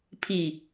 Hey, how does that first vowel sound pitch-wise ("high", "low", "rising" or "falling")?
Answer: low